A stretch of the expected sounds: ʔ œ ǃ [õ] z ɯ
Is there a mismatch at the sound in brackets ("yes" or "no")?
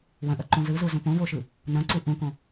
yes